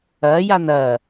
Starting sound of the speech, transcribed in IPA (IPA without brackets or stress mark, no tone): ɐ